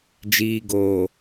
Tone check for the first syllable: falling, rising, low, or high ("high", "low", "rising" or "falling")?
low